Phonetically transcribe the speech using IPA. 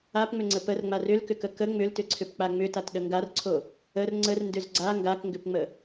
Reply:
a p ŋ͡m ʏ ŋ͡ǀ ə p ə r ŋ͡m a r ʏ l k ʏ k ə k ə ŋ͡m ʏ l t ʏ ǀʰ ʏ p k͡p a ŋ͡m ʏ t a t ɗ ə ŋ ɡ a r ǀʰ o | ə r ŋ͡ǀ ə r n d ʏ z ɡ͡ǀ a ŋ ɡ a k ŋ ɡ ʏ p ŋ͡m ə

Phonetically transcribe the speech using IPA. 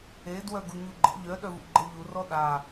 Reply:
e d w œ ɡ u ɲ u ɡ͡ǃ ə̰ ʎ œ ɗ œ v ṵ ɡ͡ǃ ɤ ʎ u r ɔ ɗ a

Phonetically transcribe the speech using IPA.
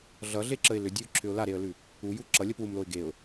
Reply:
ɮ ʌ ɮ e ǁ ə ɪ̯ l ʏ dʲ ʉ ʊ̯ ǁʰ ʏ ʊ̯ l a ɾ e ə̯ l ʉ | u j u ǁ ʌ lʲ ə p w u m l o ɪ̯ ɡ e ʊ̯

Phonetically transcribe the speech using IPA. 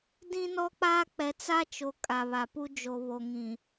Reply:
d ĩ˦ n ɔ˦ k͡p aː˦ k͡p ɛ˨ t͡s a˦ t͡ʃ o˨ kʼ a˨ β a˨ p u˦ d͡ʒ o˨ β o˨ ŋ ĩ˨

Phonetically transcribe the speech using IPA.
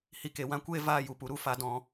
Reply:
h i˧ k e˨ w ã˦ kʷ eː˦ v aː˦ j u˨ p u˦ ɾ u˧ f a˧ d ɔ̃˧

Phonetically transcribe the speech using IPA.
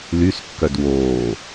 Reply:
l y s kː œ d w oː

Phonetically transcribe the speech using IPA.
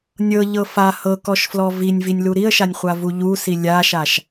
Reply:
nʲ ɤ ʎ ɤ f a h ɤ k ɔ ʃ f l ɔ v i nʲ v i nʲ l u ɾ i ə̯ ʃ a nʲ χʷ a v u ʎ u s i lʲ a ʃ a ʃ

